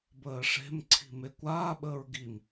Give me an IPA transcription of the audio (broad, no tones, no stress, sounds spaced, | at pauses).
b əː ʂ e̤ m ǀʰ i̤ m e kʷ aː ɓ əː ɹ ɡ i m